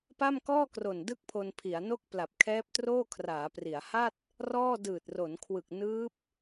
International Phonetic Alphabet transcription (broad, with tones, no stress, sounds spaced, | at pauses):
p a˥˩ m k ɔː˥˩ k r o˨˩ n d ɯ˥˩ k̚ pʰ o˧ n pʰ i˩˦ a̯ n o˥˩ k̚ p l a˨˩ p̚ kʰ ɛː˦˥ p̚ t r oː˥˩ kʰ r aː˩˦ p r i˩˦ a̯ h a˥˩ t̚ | r ɔː˥˩ d ɯː˨˩ t̚ r o˩˦ n kʰ w ɯ˨˩ k̚ n ɯː˦˥ p̚